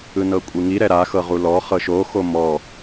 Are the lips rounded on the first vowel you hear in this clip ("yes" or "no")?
no